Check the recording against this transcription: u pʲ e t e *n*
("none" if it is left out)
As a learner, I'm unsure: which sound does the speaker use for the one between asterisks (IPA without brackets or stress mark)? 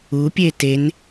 n